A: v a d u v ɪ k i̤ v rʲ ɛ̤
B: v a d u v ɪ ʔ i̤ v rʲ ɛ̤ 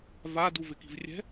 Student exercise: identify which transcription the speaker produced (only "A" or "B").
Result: A